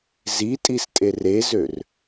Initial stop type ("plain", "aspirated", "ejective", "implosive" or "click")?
ejective